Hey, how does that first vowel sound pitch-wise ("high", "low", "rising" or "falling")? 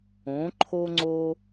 rising